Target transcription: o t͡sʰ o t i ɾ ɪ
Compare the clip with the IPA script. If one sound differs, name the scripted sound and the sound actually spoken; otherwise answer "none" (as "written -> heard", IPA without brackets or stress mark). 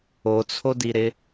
t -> d